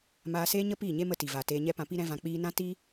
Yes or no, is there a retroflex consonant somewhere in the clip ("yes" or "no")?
no